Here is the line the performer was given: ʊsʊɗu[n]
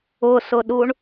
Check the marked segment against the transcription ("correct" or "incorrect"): incorrect